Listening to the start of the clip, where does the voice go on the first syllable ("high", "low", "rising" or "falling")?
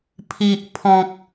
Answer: low